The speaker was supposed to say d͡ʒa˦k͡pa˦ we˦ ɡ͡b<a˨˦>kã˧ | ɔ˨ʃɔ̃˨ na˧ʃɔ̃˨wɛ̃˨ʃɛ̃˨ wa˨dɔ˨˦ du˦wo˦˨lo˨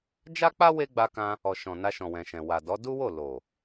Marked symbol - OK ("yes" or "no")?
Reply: no